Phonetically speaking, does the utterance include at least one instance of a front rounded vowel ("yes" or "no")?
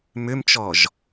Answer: yes